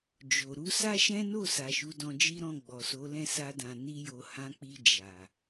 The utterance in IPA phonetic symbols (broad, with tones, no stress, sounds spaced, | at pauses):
d͡ʒ o˨ ɾ u˧ s a˦ ʃ ɛ̃˦ n o˦˨ s a˨ ʃ u˨˦ d ɔ̃˧ d͡ʒ i˦ ɾ ɔ̃˦˨ ɡ͡b ɔ˨ s o˨˦ l ɛ̃˦˨ s a˧ d ã˨ n i˧ j o˨ h ã˨˦ k͡p i˧ d͡ʒ a˨